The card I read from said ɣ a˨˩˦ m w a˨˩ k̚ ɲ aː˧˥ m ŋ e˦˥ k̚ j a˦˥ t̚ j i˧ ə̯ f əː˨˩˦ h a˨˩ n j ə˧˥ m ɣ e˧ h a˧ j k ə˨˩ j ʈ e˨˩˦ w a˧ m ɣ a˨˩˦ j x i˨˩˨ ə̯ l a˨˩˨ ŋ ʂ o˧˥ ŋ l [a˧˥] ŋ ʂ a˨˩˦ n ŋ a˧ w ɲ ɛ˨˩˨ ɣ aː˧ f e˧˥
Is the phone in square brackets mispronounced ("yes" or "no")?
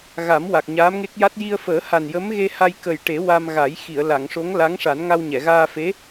no